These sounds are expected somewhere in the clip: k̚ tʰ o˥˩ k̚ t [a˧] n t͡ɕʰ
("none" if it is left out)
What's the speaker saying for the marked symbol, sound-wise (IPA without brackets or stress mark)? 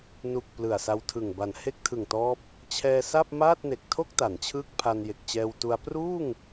a˩˦